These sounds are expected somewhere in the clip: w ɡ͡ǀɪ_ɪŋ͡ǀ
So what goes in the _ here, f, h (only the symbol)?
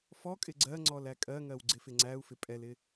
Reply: f